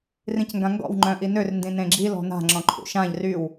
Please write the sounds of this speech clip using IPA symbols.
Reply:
rĩcŋɡãŋɡɔ̰w ŋ͡ǃœ̃ʔinør ndĩnẽɡ͡ǁi lɔ̤na̤ ŋ͡ǁɔ̃ǃʰṵʃãʎ ryw

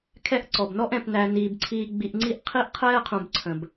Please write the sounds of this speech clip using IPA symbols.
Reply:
kʰɛ˥ʔ ǀɔ˩bnɔ˥ʔ ɛ̃˨pnæ˨ niː˩bǀʰiː˨ɡ͡bi˨ʔ ŋ͡ǀi˦ʔqʰi˦ʔ qʰɛː˦ qʰũ˨bǀʰə̃˩b

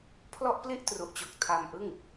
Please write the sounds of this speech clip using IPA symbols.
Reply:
pʰlɔ˥˩ʔ pli˥˩ʔtru˨˩ʔt͡ɕo˨˩k̚ tʰa˧mʔɯ˥˩ŋ

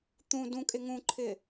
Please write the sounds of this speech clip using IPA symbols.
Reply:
t̪ũ dũkʼɪ ŋũǃʰɪ

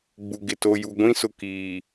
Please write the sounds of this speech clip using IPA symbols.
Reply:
ɡ͡bu˨ɡɪ˨ to˨ju˨ɡʷĩ˦ sʊ˨kiː˨

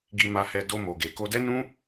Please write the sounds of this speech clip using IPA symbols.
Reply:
ɡi˧ma˧hɛ˧ do˧mo˨ɡe˨ ko˧dɛ˦nũ˦

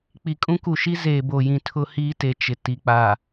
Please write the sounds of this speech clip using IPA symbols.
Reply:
k͡pi˨kʼũ˦ku˨ʃi˦ zeː˨bo˨jĩ˨ tʰʊ˦ hiː˦te˨ t͡ʃɪ˨ ti˨k͡pa˨

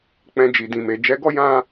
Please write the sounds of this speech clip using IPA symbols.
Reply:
k͡pɛ̃˧ d͡ʒi˨dĩ˨me˨ d͡ʒɛ˨˦ɡɔ˦ jã˦

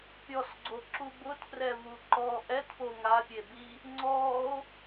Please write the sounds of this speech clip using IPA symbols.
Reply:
pʲɔsɡ͡ǀoǁu bʊtprɛvu ǃɔ ʔɛtpo ŋapʲebi | ŋ͡ǀɔo̯

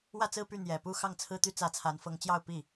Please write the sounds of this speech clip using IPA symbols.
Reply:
wä˥˧t͡sɹ̩˥˧py˥˩ n̪jɛ˨˩ pu˥˧ xɑ˥˩ŋt͡sʰɹ̩˥t̪y˥ t͡sä˧˥t͡sʰa˧˥nfɤ˧˥ŋt͡ɕjɑ˥˧ʊ̯ pi˥˩

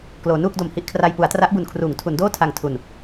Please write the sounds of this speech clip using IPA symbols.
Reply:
kloː˩˦nuː˥˩k̚do˨˩m hi˥˩ʔkʰra˧j pu˩˦a̯tra˦˥ʔbu˨˩nkʰruː˩˦ŋ tʰu˩˦n doː˥˩tʰa˨˩ŋ tʰu˨˩n

